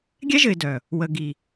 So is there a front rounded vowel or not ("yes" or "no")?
yes